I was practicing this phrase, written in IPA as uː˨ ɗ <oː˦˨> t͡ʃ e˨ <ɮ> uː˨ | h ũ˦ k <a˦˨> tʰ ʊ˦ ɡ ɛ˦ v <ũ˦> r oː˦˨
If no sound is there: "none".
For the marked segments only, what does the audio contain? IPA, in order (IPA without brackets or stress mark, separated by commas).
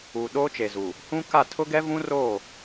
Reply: oː˦, z, a˦˨, ũ˦